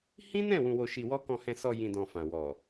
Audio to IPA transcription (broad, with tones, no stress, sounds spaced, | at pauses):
h ĩ˦ n ɛ̃˦˨ w ũ˧ w o˧ ʃ i˧ w ɔ˦ k ɔ̃˧ h ɛ̃˧ s ɔ˧ j ĩ˧ d ɔ̃˧ f ã˨ w ɔ˨